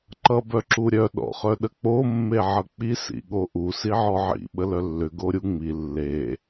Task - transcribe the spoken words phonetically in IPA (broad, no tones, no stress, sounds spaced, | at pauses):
ǃ ʌ b œ ǁ u ɾʲ œ ɗ ɔ̰ χ œ ɗ ə k͡p o mː e ʕ ʌ k͡p i s ḭ ɠ o ʔ u s i ʕ ɔ ʕ ḭ ɓ ə l œ lː ʏ ɡ o ɾʲ u ŋ͡m i lː e